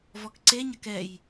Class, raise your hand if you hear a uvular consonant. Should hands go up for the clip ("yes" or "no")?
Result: no